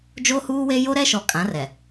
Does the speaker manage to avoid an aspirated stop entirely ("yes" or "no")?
yes